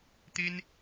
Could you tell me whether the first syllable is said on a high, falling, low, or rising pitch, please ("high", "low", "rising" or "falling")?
high